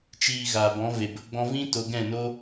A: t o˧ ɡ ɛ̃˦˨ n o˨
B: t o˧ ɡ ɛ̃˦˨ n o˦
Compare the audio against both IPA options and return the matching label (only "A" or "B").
B